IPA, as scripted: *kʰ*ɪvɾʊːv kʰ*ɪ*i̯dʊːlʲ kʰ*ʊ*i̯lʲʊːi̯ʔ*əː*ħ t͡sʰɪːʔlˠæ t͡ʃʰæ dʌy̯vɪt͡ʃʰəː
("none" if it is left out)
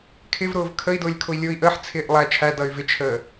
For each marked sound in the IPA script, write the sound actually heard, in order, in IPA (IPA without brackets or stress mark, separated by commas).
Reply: kʰ, ə, ʊ, əː